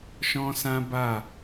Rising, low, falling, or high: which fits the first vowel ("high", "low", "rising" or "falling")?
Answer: high